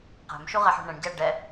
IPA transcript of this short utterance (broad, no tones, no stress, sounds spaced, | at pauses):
q æ̤ m ʃ u ʁ æ ħ ṳ ɳ ɛ̃ ɳ ɟ æ ɖ ɛ